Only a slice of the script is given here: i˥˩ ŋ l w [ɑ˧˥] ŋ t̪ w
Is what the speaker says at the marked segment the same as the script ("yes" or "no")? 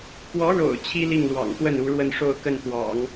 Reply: no